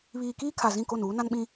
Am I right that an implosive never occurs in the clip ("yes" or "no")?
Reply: no